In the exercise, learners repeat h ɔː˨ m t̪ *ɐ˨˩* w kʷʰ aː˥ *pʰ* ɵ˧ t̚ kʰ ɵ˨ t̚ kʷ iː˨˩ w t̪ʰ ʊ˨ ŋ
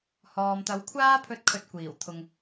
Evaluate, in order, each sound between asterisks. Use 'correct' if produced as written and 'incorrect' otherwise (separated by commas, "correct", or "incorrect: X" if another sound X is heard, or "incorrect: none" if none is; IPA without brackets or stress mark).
incorrect: ɐ˨˥, correct